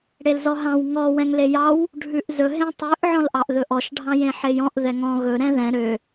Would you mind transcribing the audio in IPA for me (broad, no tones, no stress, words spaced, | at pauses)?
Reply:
ɽelzɔɦɑ̃w ŋɔ wɛ̃ŋlejɑw | ɖʱʉʔzɵ ɦẽtˤʉʔ ʕɔ̃lʔɑʔðɵʔɔʃ ɖʱɑ̃jẽħejɔ̃ʔ ðɛŋɔ̃ ɣɵ ɾɛ̃ðɛ̃ ɾø